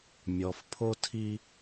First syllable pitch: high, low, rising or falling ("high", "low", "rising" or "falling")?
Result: low